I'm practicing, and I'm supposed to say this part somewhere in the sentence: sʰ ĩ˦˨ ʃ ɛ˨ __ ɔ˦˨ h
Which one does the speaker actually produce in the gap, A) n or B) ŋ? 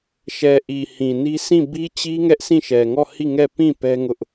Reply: B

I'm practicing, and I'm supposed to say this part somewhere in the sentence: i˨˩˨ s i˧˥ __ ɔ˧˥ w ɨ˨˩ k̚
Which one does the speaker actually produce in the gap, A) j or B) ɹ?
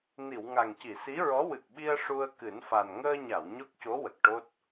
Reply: B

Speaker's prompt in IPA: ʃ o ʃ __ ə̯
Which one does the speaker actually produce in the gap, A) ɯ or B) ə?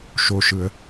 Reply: A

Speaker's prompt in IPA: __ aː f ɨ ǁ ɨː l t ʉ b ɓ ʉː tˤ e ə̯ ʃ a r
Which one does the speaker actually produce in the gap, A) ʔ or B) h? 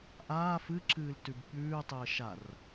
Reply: A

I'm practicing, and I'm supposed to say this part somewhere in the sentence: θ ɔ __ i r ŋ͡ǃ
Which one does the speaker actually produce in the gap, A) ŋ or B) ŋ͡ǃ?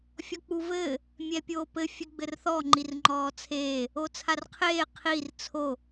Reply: B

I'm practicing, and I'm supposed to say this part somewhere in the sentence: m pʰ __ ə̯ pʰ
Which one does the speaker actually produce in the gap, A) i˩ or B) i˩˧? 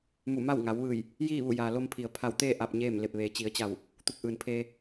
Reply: A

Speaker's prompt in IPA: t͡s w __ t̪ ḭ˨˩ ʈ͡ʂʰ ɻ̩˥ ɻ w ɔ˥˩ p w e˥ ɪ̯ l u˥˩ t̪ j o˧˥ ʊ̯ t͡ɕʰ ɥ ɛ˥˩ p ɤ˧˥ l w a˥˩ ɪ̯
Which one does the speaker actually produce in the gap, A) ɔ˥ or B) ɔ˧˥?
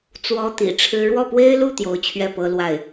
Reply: A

